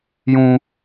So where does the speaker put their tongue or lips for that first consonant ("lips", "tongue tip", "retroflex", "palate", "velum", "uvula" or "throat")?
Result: palate